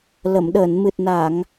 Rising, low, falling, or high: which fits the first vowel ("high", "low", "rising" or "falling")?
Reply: low